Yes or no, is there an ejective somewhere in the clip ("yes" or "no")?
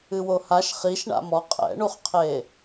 yes